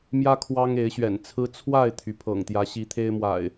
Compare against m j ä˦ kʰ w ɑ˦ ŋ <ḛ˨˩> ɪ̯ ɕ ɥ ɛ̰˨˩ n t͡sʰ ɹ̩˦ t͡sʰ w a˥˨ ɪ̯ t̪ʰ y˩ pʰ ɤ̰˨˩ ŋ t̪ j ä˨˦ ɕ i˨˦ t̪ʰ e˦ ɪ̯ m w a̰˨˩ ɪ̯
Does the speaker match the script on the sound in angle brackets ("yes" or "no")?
no